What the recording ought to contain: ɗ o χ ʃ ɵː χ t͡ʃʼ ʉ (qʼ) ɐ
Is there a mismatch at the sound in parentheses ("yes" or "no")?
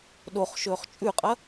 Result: no